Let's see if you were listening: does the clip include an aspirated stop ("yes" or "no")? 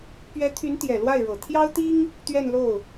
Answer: yes